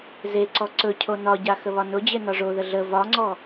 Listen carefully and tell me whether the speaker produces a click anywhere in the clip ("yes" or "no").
yes